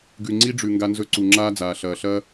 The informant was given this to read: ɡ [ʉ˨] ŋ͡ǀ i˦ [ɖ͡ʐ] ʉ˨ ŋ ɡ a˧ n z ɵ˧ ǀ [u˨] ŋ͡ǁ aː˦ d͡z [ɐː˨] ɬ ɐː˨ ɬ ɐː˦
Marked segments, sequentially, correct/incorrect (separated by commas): correct, correct, correct, incorrect